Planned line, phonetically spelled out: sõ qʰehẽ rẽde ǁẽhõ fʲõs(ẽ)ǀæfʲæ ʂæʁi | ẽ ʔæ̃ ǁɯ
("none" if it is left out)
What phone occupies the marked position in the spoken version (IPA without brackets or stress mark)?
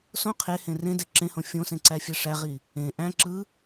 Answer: ẽ